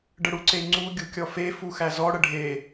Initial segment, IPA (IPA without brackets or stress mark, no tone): ɖ